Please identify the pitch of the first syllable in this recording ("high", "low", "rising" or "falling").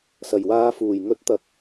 low